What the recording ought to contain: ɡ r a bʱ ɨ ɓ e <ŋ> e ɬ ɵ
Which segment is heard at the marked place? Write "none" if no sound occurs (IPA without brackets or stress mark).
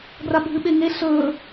ŋ